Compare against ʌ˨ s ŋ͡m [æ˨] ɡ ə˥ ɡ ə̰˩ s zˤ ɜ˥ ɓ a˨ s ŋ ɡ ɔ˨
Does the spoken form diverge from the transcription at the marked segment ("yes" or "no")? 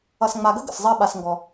yes